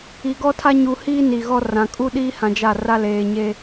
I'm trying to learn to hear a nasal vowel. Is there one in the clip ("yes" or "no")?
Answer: yes